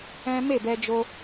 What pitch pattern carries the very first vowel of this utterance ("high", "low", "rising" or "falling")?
high